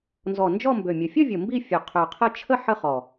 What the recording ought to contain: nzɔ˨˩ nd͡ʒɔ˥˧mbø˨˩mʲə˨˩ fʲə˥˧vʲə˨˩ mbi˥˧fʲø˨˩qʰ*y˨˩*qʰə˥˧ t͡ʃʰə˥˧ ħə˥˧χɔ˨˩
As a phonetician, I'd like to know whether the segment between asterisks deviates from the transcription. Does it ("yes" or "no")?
yes